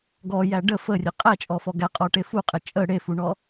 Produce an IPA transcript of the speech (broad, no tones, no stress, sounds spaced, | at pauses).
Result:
ɡ ɔ j æ ɖ ə f ə rʲ ə qʼ æ t͡ʃʼ ɔ f ɔ ɡ æ qʼ ɔ ʈ e f u qʼ ɛ t͡ʃʼ ə ɽ e f u ɳ ɔ